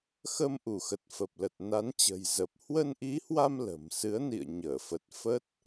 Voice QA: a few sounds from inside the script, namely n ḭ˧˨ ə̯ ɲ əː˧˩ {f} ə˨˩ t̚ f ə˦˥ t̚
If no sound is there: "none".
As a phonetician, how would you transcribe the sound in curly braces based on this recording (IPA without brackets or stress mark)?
f